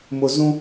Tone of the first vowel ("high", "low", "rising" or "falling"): low